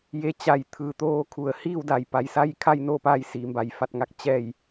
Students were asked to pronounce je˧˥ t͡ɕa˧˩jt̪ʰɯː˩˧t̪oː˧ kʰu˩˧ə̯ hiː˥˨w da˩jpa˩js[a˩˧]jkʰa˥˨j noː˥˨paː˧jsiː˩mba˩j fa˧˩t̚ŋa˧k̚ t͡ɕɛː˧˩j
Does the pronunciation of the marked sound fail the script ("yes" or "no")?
yes